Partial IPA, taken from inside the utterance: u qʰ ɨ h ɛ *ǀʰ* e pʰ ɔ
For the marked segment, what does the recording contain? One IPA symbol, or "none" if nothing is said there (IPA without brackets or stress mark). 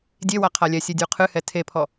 tʰ